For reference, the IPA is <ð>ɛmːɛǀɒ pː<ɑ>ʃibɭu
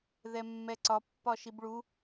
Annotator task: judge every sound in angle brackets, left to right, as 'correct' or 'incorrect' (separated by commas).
correct, incorrect